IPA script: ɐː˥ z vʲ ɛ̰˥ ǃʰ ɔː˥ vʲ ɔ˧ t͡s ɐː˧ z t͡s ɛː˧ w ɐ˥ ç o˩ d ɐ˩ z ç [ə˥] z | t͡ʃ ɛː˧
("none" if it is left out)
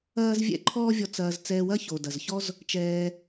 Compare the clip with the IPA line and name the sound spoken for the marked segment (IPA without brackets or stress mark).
ɔ˥